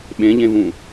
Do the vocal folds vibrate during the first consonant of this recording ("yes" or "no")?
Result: yes